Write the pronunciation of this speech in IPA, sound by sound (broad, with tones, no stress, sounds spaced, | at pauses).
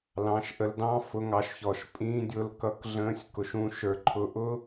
l ɑ̃˨˦ ʃ ʔ ə˧ l d ɑ̃˦ f ʊ˧ ŋ ɑ˧ ʃ ç ɔ˨ ʃ pʼ ĩː˧ dʲ ʊ˧ l k ʌ˧ k ɮ ə̃ː˧ sʲ k ʊ˨ ʃ ũ˧ ʃ ə˞˧ ǃʰ ʊ˧ ʔ ʊ˦